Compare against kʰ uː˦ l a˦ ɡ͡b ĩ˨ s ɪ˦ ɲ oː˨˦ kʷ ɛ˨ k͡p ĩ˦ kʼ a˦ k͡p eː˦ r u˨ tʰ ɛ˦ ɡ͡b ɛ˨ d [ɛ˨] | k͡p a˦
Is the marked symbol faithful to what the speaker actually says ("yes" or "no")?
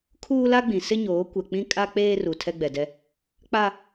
no